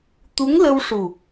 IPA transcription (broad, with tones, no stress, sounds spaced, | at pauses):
t̪ u˧˥ ŋ l ə˧ w ʂ u˨˩